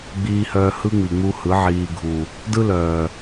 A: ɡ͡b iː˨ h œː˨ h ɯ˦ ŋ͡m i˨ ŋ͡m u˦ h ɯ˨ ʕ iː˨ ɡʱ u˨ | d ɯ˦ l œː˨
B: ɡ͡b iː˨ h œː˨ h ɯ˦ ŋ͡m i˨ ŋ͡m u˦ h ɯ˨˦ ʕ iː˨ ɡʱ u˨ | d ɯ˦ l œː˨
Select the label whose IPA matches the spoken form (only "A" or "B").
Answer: B